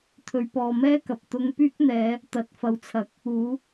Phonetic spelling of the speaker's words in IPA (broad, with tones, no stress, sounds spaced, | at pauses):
t̪ʰ ɵ˨˧ ɥ p ɔː˨ m ɛː˥ k ɐ˨ p̚ t̪ ʊ˧ ŋ p yː˥ k̚ n̪ ɛː˨˧ | t̪ ɐ˨˥ t̚ f ɐ˨ w t͡sʰ ɐ˨˥ k̚ | uː˨˥